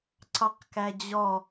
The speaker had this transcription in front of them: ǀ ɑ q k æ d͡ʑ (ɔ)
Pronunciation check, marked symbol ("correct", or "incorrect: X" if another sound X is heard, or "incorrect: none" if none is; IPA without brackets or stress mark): correct